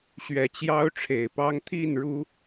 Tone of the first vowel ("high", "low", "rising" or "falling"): low